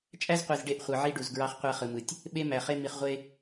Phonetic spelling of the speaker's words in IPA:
t͡ʃʼ æ˦ z qʷ i˨ z ɖ e˦˨ ʔ χʷ ɯ˨ ʕ i˦ ɖ u˨ z ɡ ɹ ɑ˦ χ qʷ æ˦ χ ɯ˨ m ɯ˨ tʲ | ɓ e˦ m æ˨ χ e˦ m i˨ χ ʁʷ e˦

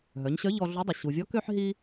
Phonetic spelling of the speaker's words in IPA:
ɦ œ˩˧ ɲ ɕ œ˧˥ ʎ ɔ˧ ɮ u˧˥ dˤ y˩ ɕ u˩ vʲ ɔ˧˥ k ø˥ ħ ɦ i˥

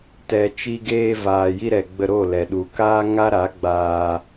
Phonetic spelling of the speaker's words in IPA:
t ɛ˨ t͡ʃ i˧ ɡ eː˧ v aː˨ j i˧ ɾ ɛ˨ ɡ͡b ə˧ ɾ o˦˨ l ɛ˨ ɗ u˨ k aː˦ ŋ a˦ ɾ a˨˦ ɡ͡b aː˧

